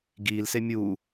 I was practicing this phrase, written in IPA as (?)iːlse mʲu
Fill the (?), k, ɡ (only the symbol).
ɡ